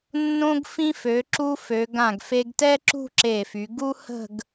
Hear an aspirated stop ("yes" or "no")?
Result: no